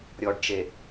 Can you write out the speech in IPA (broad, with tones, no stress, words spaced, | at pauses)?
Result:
ɾʲɔ˨ɖt͡ʃe˨